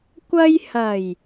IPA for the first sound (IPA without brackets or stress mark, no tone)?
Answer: kʷ